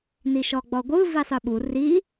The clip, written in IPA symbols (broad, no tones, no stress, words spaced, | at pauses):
niʃɔɡ͡bɔɡʷɯ visˤɯɓu ri